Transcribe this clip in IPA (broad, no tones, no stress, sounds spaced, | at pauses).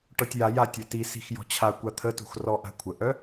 ʈ ɔ tʲ j a j a tʲ œ t i s i̤ x j ɔ̤ t͡ɕʰ a kʷ a t̪ʰ ə t ṳ x r ɔ ʔ a̤ kʷʰ ə ʔ œ